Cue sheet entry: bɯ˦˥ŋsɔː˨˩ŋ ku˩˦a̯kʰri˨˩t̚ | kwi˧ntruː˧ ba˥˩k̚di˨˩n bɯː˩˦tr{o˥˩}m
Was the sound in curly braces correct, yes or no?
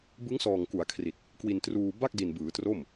yes